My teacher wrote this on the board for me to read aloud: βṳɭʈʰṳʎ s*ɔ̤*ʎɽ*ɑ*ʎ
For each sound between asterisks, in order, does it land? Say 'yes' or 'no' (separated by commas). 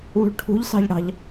no, no